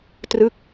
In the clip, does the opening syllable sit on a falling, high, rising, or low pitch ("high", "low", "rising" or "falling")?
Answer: falling